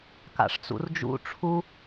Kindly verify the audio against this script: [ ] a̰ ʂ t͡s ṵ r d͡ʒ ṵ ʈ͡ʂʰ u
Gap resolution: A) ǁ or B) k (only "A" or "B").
B